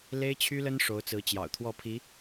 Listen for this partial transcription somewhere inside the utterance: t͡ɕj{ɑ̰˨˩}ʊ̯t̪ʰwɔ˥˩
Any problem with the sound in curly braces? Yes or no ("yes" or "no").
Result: no